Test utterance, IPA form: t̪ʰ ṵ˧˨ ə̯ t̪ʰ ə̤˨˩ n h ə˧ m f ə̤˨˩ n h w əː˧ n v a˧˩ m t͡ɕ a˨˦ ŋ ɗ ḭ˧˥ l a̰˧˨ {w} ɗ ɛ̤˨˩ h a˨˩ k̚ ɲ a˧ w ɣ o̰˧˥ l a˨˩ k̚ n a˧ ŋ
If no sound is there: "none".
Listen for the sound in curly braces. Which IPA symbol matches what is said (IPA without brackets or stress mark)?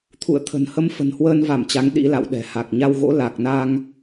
w